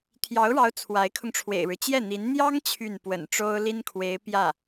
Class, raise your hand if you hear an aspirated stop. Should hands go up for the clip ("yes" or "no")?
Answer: yes